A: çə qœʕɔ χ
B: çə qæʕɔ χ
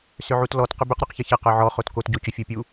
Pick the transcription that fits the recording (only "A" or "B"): A